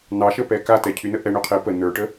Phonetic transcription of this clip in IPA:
nɑʃəpɛ katɛcʰynə ʔɛ ɳøqʰe pə nə˞ʈə

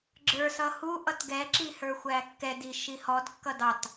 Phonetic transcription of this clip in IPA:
ɡ͡ǁə˞sʌ huʔʌt ɡɛǁi hə˞xʷækːɛdi ʃihɔdkːʌ dɑt

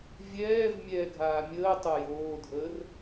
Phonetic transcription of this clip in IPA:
vʲɛːv mʲɛːɡʱaːmʲəːtˤo joːdʱəːr

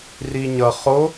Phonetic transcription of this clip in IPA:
riɲʌ χo

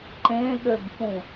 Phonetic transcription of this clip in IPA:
ǃẽɠøbfũ

